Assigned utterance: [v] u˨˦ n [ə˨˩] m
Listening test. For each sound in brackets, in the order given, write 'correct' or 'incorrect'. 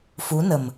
incorrect, correct

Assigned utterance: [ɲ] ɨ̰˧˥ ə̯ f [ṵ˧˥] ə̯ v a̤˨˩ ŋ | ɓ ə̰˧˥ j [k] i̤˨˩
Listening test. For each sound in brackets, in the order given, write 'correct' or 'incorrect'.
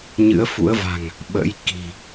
correct, correct, correct

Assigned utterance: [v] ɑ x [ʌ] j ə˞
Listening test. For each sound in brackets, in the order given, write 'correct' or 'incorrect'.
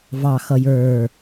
correct, correct

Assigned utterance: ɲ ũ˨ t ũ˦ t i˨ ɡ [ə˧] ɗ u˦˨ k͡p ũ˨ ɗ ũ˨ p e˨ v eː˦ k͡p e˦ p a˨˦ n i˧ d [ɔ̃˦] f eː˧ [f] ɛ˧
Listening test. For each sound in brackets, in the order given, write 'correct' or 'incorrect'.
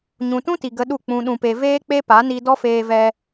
correct, incorrect, incorrect

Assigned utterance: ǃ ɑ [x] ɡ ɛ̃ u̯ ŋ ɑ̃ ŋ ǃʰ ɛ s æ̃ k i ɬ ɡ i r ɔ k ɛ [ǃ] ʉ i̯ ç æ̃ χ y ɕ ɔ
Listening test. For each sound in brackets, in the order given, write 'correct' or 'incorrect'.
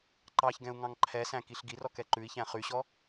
incorrect, correct

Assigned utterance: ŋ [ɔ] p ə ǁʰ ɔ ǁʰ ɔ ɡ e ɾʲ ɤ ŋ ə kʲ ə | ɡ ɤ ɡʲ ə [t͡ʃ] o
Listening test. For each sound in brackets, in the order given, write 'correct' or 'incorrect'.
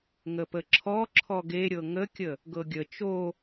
incorrect, correct

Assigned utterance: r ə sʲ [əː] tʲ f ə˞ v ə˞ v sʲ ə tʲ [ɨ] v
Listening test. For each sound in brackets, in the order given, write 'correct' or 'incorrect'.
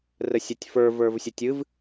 incorrect, correct

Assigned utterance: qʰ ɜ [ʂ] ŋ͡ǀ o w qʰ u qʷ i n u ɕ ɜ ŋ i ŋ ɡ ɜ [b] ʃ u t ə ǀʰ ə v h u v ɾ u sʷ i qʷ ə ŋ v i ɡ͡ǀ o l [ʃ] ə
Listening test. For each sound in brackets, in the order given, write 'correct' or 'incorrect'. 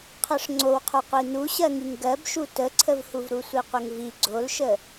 correct, correct, correct

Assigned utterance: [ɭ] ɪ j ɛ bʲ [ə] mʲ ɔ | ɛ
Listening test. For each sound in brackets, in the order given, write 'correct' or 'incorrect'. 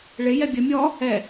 correct, correct

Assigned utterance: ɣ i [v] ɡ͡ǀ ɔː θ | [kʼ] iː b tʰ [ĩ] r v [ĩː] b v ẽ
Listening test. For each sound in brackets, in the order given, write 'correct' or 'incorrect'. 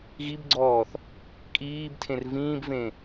incorrect, correct, incorrect, correct

